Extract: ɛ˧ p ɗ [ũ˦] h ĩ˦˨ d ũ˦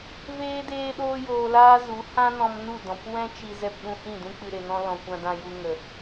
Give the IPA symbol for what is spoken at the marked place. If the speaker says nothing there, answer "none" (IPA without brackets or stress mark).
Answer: ũ˧